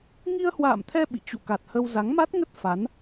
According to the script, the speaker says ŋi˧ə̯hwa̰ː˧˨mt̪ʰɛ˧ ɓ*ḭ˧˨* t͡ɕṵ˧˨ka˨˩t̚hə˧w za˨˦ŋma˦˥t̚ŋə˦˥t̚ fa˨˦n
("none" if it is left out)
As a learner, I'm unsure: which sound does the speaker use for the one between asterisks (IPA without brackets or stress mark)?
ḭ˧˨